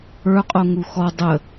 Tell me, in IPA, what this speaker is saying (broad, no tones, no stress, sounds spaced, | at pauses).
ə˞ qʼ o ŋ u x ɔ dˤ ə